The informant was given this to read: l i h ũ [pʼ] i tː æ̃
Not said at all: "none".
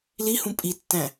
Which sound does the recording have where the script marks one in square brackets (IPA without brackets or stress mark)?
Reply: pʼ